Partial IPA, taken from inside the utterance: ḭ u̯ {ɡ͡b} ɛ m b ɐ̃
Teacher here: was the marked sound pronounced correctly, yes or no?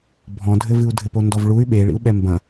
no